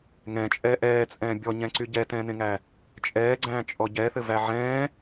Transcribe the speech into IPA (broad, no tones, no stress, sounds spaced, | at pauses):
ŋ ɛ̃ t͡ʃʼ ɛː ʔ ɛː t͡sʼ ɛ̃ː bʲ ɔ ɲ ɛ̃ ǀ y ɟ ɛ t ɛ̃ː n ẽ ŋ æ | t͡ʃʼ ɛː ɡ͡ǀ æ̃ː t͡ʃʼ ɔ ɟ ɛ θ ɘ v æ ʕ ɛ̃ː